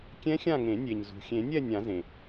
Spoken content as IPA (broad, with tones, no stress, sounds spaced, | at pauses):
kʲ ɛ̃˦˥ xʲ ã˦˨ ŋ ẽ˨˩˦ nʲ e˩ ɲ z ṳ˩ xʲ ẽ˨˩˦ nʲ ɛ˦˨ nʲ ã˨˩˦ z ẽ˩